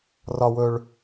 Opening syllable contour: high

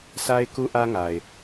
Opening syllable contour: high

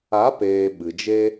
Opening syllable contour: rising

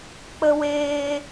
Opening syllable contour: high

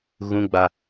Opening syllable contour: high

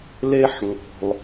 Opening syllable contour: high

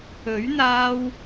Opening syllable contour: rising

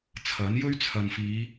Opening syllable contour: rising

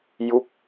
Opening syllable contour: falling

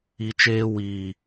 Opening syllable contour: low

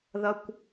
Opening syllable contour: low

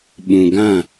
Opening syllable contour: low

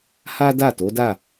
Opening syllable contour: high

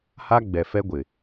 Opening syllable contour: high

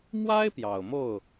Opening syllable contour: high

